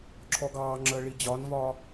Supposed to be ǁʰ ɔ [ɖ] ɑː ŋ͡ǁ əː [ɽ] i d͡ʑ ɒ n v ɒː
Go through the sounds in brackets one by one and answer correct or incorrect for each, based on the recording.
incorrect, incorrect

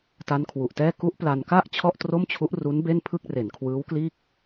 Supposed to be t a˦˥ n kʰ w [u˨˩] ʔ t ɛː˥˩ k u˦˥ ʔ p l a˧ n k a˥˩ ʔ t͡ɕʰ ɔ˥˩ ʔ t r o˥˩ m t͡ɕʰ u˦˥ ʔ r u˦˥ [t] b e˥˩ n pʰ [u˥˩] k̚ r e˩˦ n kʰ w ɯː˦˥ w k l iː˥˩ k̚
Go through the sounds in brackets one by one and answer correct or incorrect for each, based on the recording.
correct, incorrect, incorrect

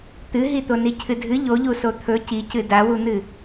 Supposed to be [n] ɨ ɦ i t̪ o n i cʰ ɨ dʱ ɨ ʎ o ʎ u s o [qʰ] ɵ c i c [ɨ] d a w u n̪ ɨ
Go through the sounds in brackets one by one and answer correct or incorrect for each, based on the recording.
incorrect, incorrect, correct

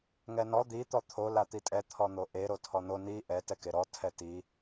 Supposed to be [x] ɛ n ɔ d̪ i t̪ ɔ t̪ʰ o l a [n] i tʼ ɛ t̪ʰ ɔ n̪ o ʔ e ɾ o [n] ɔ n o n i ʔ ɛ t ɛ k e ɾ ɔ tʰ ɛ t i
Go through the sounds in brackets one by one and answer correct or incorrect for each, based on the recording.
incorrect, incorrect, incorrect

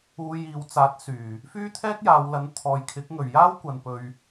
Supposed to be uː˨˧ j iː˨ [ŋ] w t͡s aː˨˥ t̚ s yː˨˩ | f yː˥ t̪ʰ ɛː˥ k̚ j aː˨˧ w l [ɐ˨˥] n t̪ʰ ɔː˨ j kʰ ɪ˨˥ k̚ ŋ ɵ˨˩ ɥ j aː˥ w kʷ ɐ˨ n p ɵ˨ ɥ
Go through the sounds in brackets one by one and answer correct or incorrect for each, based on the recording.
incorrect, correct

